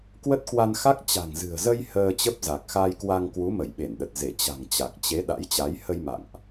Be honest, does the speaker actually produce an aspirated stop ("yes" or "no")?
no